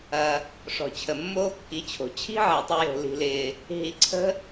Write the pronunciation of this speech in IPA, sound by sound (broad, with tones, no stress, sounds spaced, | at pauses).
ɐ˧ | ʂ ɔ̤˨ t͡ɕʰ ə˨ mː oː˦ kː i˨˦ t͡ɕʰ o̤˨ t͡ɕʰ i̤˦ ʕ ɛ˨ tˤ ʊ˧ j o̤˨ l i̤˧ l ɪː˧ | ɦ i˨ ǀʰ ə̤˦